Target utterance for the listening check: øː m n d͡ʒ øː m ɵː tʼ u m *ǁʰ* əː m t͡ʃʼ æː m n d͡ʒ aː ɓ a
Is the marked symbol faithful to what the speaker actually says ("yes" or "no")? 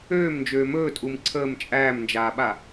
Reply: no